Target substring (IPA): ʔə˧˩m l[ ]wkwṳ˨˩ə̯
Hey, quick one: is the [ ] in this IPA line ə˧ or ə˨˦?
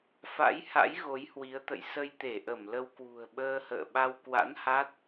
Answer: ə˧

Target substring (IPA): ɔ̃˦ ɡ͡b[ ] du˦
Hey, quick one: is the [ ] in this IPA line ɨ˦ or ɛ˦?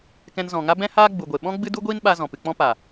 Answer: ɨ˦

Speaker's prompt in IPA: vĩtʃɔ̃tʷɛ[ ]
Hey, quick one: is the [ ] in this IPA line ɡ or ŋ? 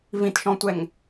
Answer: ŋ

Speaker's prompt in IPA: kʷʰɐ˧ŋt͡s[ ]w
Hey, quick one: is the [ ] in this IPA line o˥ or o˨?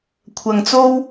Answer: o˥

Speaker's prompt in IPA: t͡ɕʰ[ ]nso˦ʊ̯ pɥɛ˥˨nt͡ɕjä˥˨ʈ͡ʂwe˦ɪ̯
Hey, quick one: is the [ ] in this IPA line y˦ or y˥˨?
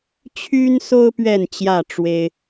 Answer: y˦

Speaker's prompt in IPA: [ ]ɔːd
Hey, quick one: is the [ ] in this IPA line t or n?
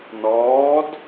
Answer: n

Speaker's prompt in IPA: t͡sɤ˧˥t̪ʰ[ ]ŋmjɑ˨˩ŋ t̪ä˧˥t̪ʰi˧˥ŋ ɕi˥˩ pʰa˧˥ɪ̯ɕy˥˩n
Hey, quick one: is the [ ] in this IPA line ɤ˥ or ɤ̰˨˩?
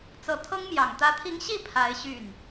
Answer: ɤ˥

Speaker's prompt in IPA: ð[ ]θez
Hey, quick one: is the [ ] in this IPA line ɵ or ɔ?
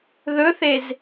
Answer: ɵ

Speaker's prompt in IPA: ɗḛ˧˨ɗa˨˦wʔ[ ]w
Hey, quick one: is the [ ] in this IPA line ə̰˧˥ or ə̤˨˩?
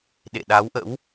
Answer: ə̰˧˥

